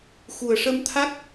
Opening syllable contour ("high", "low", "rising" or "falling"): low